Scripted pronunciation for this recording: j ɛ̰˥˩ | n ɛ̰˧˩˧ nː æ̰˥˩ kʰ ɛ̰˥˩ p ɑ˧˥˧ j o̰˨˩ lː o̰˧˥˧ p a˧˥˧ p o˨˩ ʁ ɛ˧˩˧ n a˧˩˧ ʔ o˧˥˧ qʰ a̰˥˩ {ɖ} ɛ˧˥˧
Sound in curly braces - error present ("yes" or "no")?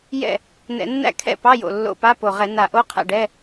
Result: no